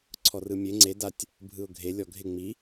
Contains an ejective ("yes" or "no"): no